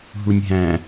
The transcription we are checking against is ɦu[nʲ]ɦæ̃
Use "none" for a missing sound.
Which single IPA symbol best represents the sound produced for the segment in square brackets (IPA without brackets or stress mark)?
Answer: nʲ